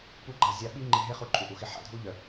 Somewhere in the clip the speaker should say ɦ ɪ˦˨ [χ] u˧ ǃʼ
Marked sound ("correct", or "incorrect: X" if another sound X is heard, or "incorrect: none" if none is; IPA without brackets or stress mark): correct